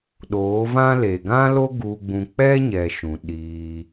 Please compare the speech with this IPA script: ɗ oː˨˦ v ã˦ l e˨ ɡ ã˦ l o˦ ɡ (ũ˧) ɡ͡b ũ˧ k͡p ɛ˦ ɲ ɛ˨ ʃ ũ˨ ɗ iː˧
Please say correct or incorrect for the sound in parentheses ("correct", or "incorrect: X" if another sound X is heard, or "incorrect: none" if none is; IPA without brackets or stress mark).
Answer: incorrect: u˧